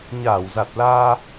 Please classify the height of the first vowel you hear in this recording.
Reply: low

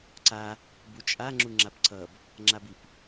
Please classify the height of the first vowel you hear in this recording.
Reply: low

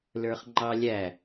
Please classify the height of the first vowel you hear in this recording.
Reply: mid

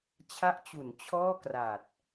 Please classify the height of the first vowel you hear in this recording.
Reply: low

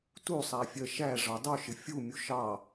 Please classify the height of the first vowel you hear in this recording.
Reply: high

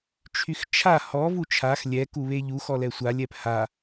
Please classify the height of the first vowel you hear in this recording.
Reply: high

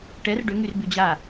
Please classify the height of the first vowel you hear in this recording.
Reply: mid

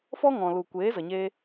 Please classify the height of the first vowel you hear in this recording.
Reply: mid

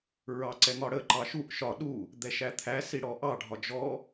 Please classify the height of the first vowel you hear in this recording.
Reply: low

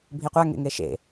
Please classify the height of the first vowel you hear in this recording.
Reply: high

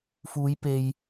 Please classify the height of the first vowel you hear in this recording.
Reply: high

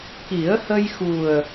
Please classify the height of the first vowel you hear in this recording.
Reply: high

